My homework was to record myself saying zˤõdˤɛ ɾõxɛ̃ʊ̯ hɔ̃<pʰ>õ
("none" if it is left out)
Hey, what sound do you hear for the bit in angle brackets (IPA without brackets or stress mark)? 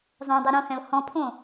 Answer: pʰ